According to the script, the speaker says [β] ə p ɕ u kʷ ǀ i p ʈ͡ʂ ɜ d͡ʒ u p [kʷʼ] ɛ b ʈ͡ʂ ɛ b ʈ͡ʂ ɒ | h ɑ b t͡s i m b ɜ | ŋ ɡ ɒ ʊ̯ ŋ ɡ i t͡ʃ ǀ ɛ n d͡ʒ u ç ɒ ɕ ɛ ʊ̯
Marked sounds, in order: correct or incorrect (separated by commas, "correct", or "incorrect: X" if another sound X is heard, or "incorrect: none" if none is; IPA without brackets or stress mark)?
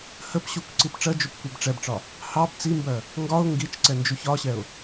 incorrect: h, incorrect: kʷ